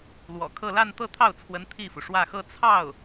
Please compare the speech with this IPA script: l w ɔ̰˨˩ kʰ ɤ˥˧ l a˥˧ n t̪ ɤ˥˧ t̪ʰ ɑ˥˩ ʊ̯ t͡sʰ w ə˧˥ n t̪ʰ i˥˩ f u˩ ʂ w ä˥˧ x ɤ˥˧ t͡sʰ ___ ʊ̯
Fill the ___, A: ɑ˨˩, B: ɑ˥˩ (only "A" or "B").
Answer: B